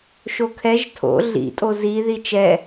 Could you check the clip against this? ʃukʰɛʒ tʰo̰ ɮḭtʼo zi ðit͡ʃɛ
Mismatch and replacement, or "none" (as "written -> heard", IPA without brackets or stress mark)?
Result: u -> o